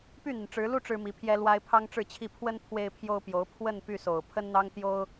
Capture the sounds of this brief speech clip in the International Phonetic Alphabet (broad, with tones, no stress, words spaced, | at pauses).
py˥˩n̪i˩nʈ͡ʂɻ̩˧˥lu˥ ʈ͡ʂɻ̩˥mi˧˥pʰjɛ˥lwa˥ɪ̯ pʰɑ˥ŋʈ͡ʂɻ̩˥˧t͡ɕʰi˥˩ pʰwə˥n pʰwe˥ɪ̯pʰjo˥ʊ̯pjo˧˥ʊ̯ pʰwə˥˧n py˥˩so˨˩ʊ̯ pʰə˥nn̪ɑ˥ŋt̪jo˥ʊ̯